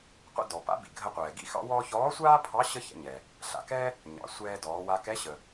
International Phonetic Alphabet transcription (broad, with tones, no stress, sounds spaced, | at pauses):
qʷ ɛ̰˥ d ɔ˩ p a̰˧˥ b ḭ˩ ɡʱ ə˧ qʷ ɛː˩ ɡ ḭ˥ x ɑ̰˧˥ w ɔː˥ ç ɔː˧˥ sʷ aː˥ pʰ ɑ˧˥ ɕ ə˥ ç ɛ̰˧ ɲ ɛ˩ | ɬ a̰˩ k ɛ˥ | ɲ ɑ̰˩˧ sʷ ɛː˧ d ɔː˩˧ w a˧ k ɛ˧˥ ɕ ə˩